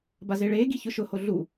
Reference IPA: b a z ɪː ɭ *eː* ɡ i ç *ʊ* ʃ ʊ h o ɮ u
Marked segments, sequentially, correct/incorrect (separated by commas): correct, correct